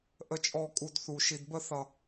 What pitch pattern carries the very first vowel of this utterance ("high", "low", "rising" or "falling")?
high